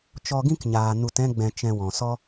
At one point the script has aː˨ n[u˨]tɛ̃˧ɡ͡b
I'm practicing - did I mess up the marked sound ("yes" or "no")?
no